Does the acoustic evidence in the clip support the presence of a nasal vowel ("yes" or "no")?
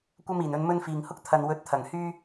no